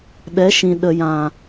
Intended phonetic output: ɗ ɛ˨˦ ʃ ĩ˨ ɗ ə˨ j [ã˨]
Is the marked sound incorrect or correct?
correct